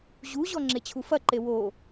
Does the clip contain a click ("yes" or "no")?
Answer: yes